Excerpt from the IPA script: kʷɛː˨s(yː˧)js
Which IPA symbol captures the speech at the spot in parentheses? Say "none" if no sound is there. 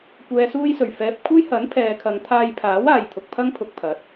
uː˧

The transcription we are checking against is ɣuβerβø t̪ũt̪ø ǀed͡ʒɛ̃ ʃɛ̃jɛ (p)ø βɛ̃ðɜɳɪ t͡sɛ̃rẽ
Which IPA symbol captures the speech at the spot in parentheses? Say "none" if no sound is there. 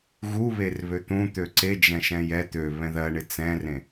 t̪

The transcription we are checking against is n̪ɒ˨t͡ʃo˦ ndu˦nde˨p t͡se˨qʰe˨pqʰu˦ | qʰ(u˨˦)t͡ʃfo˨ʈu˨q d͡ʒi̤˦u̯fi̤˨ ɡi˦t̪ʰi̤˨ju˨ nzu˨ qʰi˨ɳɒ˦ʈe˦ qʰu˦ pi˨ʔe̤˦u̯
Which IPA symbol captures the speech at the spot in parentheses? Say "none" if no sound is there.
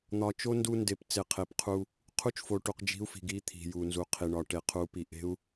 u˦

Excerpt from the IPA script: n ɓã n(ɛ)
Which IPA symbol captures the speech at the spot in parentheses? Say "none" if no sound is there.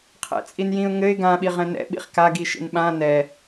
ɛ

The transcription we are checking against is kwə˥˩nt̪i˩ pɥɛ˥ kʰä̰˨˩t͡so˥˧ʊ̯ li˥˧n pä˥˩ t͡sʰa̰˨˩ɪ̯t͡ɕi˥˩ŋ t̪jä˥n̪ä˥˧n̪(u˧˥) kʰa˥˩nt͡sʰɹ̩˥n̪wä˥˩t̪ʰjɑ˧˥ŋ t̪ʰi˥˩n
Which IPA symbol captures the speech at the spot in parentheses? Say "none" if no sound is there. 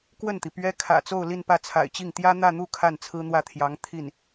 u˥˧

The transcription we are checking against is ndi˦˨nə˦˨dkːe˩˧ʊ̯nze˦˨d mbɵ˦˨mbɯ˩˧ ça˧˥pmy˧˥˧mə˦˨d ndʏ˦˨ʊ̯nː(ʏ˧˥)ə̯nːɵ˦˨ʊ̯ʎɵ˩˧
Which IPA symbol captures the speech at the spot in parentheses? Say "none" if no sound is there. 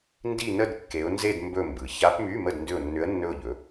ʏ˧˥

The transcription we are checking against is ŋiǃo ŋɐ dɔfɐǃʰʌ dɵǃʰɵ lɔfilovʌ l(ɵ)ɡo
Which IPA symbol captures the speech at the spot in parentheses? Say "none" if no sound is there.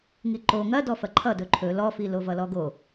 ɔ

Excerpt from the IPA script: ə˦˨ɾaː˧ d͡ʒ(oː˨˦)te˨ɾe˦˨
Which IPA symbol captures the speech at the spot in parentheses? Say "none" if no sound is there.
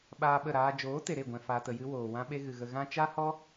oː˨˦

